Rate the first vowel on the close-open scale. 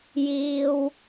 close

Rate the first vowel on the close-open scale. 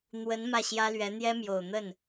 mid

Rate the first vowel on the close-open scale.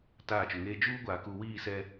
open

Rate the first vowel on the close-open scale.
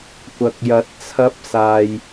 open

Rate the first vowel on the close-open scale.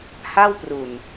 open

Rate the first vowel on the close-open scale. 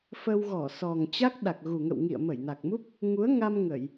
mid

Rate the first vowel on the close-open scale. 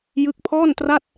close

